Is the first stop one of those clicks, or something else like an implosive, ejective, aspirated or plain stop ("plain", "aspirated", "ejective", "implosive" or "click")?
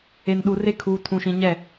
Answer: implosive